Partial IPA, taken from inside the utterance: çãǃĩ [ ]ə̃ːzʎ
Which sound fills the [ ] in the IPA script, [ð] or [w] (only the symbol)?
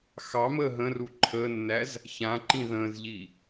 ð